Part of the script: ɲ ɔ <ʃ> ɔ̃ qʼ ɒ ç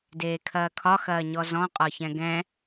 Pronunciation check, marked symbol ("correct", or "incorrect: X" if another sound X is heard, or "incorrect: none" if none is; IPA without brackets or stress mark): incorrect: z